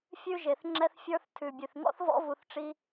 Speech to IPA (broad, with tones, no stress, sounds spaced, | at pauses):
fʲ ʉ˧ ʒ e˨ θ ŋ͡ǁ ɛ˧ θ fʲ ə˞˧ θ tʰ ʉ˨ bʲ ʉ˨ θ ŋ ɔ̰˦ θ v ɔ̰˦ v u˧ θ ʈ͡ʂ i˦